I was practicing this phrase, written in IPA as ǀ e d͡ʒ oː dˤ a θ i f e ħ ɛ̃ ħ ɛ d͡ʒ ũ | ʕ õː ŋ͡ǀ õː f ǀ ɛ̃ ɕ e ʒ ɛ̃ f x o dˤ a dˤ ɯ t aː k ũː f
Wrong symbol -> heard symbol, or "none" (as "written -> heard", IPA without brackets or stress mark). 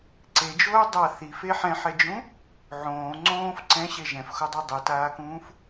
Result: none